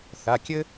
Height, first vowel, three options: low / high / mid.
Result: low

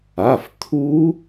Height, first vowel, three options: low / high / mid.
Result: low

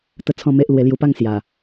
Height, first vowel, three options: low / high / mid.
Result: mid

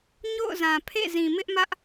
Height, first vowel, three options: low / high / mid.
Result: mid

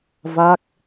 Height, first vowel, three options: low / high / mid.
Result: low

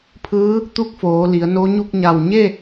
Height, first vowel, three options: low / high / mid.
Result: high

